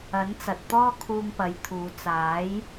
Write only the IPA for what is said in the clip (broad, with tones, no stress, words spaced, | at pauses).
ɐ˨˥nt͡sɐ˨t̚t̪ɔː˥ kʰuː˧ŋpɐ˨˥jt̪ʰuː˨˧ t͡saː˨˥j